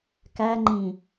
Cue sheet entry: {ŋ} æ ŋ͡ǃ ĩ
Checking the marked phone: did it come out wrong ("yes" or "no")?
yes